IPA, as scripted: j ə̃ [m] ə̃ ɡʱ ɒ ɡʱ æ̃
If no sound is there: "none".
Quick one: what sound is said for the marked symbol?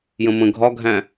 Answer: m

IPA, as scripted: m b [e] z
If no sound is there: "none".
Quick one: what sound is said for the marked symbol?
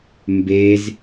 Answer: e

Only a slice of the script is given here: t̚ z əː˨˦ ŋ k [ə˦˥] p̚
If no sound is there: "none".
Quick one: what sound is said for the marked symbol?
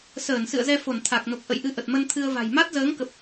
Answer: ə˨˩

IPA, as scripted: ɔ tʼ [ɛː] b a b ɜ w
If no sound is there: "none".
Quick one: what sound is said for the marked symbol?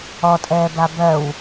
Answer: ɛː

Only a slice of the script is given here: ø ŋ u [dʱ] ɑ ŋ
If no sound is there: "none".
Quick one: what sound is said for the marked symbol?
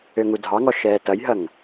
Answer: dʱ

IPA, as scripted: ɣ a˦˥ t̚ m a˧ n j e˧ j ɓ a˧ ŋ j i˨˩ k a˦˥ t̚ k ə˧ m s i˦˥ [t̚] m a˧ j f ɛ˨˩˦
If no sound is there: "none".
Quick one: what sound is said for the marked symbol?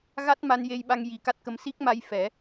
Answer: k̚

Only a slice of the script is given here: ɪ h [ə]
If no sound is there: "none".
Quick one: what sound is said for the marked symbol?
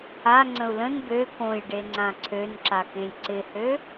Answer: ø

